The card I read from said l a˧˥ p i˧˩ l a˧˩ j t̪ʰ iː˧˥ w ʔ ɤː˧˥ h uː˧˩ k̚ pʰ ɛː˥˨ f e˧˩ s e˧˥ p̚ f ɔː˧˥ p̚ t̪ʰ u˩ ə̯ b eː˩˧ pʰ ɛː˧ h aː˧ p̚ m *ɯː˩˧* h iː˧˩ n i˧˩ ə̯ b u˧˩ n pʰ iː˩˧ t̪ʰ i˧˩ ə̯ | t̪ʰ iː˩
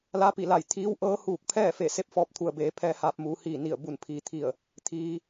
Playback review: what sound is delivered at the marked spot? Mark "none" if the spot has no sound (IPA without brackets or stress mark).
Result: uː˩˧